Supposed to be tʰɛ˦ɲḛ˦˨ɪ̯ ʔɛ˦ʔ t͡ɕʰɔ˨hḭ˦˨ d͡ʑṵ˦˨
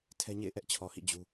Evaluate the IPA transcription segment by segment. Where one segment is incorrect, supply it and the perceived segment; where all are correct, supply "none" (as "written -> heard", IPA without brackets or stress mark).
ṵ˦˨ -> u˦